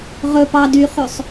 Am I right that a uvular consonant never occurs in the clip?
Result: no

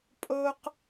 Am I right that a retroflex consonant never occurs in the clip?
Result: yes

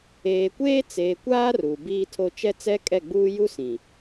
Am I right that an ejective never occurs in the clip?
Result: no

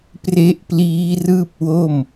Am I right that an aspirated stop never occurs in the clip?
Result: yes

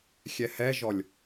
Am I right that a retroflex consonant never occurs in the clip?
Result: yes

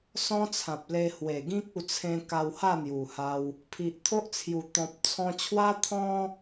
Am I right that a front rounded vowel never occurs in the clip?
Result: yes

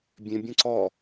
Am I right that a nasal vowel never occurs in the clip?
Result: no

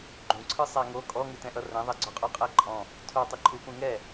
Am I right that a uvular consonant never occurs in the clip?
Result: no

